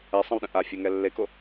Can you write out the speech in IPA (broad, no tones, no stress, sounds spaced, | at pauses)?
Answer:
ɛ sˤ ə̃ w ɗ ə̃ ʔ a fʲ o ŋ ɛ lː e k o